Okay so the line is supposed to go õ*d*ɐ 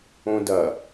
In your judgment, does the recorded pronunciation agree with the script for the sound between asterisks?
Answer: yes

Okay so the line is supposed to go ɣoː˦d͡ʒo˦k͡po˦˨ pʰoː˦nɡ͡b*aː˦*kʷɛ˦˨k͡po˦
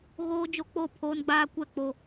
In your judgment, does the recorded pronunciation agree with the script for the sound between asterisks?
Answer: yes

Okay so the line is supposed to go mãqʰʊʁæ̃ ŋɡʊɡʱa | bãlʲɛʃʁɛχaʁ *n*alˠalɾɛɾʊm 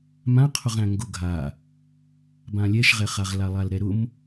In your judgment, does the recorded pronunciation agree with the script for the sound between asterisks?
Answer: no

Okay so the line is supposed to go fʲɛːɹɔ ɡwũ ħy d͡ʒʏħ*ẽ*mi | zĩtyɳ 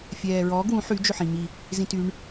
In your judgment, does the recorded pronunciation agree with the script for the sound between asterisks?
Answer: no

